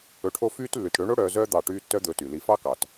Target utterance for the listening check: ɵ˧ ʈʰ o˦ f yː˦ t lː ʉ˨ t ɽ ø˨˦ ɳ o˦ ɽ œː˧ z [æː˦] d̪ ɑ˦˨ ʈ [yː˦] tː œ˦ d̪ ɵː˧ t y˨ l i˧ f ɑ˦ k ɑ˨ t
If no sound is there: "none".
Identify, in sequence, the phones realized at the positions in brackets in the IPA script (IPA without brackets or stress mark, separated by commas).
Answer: œː˦, yː˦